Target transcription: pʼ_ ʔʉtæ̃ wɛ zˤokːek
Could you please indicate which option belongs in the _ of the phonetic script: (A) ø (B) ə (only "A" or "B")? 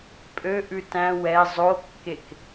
A